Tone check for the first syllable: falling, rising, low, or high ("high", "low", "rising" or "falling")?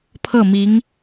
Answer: falling